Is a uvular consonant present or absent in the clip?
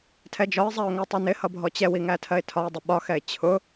absent